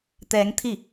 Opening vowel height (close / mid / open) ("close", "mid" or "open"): mid